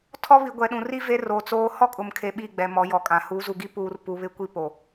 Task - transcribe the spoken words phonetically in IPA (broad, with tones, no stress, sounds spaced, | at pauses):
tʰ ɔ˦ β i˨ ɡʷ ɛ˨ ɗ ũ˨ r i˦ v e˦ r o˨ t͡s oː˦ h ɔ˦ kʼ ʊ˨ m kʰ e˨ ɓ i˦˨ ɡ͡b ɛ˨ m ɔ˨˦ j ɔ˨ kʼ ã˨ h uː˨˦ z u˨ ɡ i˦ p uː˦ r p u˨ β ɪ˦ kʷ i˦ p o˨